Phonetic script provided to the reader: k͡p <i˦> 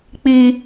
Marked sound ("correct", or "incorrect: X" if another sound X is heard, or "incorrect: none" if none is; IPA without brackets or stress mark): incorrect: i˨